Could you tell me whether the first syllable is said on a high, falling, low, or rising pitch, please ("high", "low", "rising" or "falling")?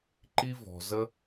high